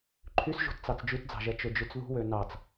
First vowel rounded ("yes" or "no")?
yes